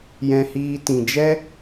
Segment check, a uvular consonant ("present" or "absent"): absent